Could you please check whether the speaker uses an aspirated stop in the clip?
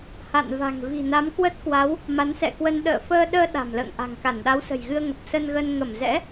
no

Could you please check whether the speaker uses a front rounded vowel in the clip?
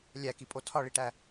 no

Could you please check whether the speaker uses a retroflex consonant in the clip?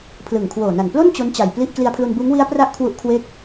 no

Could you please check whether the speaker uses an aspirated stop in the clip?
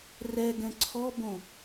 yes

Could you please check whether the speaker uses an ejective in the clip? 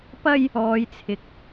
no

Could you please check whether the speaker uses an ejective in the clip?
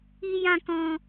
no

